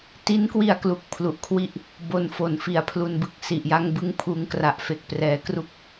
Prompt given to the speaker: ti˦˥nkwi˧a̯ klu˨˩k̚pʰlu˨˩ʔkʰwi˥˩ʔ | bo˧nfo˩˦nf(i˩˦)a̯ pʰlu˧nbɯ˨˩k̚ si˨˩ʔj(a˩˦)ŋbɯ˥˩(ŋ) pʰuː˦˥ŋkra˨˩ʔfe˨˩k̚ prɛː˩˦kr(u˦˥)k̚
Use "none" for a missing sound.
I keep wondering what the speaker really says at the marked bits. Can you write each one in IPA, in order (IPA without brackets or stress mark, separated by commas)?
i˩˦, a˥˩, ŋ, u˦˥